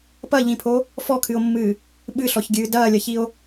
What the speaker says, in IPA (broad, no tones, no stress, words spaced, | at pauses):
pɐʎĩpʰo | fɔkʰɨo̯mːɨː | ɓɨɬɔçɡʲɨː dɐːlʲɐçio̯